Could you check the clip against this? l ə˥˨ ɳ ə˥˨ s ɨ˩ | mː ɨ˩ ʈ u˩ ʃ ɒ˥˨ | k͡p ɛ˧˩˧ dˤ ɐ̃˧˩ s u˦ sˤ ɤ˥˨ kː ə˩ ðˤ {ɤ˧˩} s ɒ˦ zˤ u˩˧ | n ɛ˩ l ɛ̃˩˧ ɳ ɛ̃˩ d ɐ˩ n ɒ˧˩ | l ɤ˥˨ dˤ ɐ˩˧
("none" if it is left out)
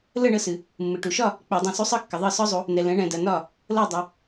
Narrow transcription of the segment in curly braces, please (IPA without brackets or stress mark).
ɤ˧˩